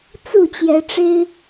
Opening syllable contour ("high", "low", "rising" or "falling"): falling